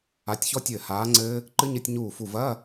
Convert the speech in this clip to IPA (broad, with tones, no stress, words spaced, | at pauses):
a˨˥tʲçɔ˦˥tʲɘː˧˩ haː˨˥ŋ͡ǀɘː˦˥ | ǃɨ˦˥ɲɘ˧˥˧tʲ ɲuː˧˩fu˧˩vɐː˧˥˧